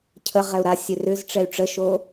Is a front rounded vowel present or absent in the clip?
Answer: present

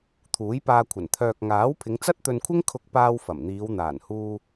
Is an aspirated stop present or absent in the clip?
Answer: present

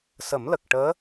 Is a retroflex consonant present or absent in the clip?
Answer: present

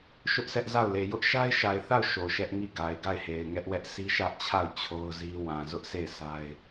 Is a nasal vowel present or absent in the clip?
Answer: present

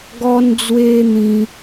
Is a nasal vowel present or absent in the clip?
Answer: present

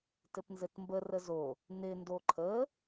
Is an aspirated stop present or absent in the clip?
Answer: present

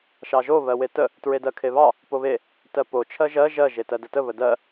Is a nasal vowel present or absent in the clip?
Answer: absent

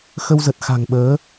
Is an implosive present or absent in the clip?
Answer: present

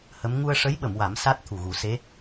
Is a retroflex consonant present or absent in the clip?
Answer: present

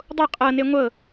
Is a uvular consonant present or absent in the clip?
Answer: present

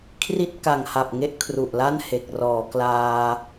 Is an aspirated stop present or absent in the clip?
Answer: present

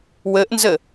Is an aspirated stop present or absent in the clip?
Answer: absent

